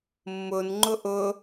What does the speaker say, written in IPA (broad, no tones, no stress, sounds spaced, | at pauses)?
mː ʊ n ŋ͡ǃ ʊ ʔ ʊ